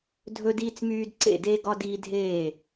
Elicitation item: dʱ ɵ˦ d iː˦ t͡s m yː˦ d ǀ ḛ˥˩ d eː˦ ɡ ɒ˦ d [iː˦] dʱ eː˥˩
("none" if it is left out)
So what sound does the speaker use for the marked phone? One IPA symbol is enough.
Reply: iː˦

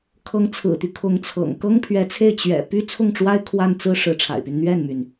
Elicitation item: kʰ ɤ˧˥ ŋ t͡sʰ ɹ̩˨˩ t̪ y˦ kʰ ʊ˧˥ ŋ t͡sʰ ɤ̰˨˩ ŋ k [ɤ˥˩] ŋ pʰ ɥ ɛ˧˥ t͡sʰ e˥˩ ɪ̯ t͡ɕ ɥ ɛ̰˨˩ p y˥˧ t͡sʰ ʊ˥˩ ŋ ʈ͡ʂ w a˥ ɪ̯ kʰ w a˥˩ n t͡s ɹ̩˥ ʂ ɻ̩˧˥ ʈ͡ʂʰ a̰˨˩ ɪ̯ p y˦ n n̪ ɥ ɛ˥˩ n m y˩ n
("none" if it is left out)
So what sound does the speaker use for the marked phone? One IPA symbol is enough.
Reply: ɤ˥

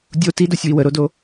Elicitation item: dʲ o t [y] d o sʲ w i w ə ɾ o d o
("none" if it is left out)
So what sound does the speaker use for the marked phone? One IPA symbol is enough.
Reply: i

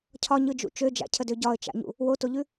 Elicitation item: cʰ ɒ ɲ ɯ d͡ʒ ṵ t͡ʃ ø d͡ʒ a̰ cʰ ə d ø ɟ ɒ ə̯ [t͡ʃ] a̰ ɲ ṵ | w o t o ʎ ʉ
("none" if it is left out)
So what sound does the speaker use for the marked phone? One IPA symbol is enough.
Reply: t͡ʃ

